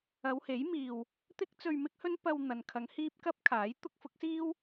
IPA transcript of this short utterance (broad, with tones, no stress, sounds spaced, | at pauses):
ɐ˨˧ w h e˨˥ j m iː˨ w | t̪ ɪ˥ k̚ t͡s ɵ˧ ɥ m ɪ˥ k̚ h ɵ˥ n p ɐ˧ w n̪ ɐ˨ n kʰ ɐ˨˧ ŋ h iː˥ p̚ k ɐ˥ p̚ kʰ aː˨˥ j t̪ ʊ˥ k̚ f ʊ˨˥ k̚ s iː˥ w